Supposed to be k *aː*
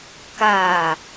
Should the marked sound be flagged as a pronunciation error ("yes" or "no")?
no